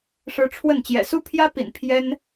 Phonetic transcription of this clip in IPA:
ʂɻ̩˧˥ ʈ͡ʂʰwə˥˩n t͡ɕjɛ̰˨˩su˥pʰjä˥pḭ˨˩n pʰjɛ˥n

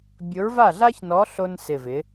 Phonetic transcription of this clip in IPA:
bʲʊ˨˥ɹva˥˩ɮa˥çnɔ˨˥ ɬo˧nsɪ˨˩vɪ˩˧

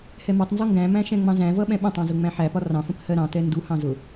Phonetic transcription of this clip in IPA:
hɛmɒtˤnzɔ ŋɡæ̃mæ̃ ʃɛ̃ŋ͡mɑ̃zæ̃vʌ ɓɛ̃ɓə̃tˤɑ̃ zʊŋ͡mæ̃ħæpɒ rɑ̃fə̃p hɜɾɑ̃tɛ nduhɑ̃ zʊ

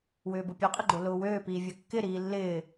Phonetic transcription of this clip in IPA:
wʏːbʊpʲøqʼɪ ɡ͡ǃolʊːwøːpiː vʲøkːɪɾiː lːɪː

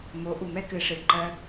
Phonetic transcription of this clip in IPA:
mo˨˦ʔu˨mɛ˦ kɨ˨ʂɨ˨ǃɜ˧

